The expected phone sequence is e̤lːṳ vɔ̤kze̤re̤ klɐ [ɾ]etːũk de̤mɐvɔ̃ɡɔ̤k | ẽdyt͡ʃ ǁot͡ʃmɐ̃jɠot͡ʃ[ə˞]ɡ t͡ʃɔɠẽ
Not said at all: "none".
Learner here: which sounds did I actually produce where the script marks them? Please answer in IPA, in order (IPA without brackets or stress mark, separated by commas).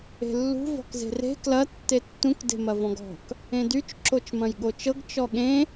tː, ɤ